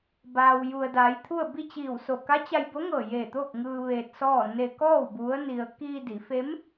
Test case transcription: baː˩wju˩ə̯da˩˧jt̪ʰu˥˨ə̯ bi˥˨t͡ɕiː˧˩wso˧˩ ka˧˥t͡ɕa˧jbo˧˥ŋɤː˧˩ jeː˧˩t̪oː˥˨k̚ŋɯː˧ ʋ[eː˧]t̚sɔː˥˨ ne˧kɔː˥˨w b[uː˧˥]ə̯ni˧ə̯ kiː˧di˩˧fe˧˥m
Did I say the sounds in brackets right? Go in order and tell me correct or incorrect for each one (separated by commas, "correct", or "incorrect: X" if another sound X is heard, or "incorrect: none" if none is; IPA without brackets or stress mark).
correct, incorrect: u˧˥